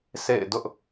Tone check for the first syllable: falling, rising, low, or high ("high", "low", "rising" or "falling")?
falling